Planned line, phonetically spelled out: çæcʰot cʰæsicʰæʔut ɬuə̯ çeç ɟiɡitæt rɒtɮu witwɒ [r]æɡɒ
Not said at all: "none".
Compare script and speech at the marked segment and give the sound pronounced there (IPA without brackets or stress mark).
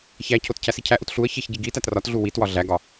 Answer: ɮ